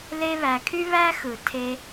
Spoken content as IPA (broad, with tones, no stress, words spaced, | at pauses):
le˦βæ˨kʰy˥ βæ˥xɯ˨ tʰe˦